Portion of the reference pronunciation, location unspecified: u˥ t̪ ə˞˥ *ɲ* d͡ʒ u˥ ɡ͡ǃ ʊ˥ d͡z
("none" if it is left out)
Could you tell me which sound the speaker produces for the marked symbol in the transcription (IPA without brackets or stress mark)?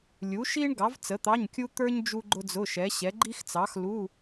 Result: ɲ